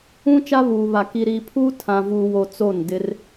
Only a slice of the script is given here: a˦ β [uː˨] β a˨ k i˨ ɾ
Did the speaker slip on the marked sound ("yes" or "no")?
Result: no